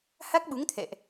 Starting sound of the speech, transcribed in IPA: h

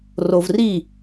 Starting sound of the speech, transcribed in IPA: r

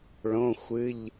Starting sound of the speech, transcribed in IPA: ɭ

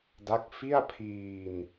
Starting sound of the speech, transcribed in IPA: d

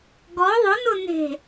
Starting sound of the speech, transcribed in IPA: ɡ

